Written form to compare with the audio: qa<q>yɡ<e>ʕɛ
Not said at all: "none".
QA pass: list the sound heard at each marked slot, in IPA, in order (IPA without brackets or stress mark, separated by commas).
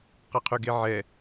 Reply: qʰ, e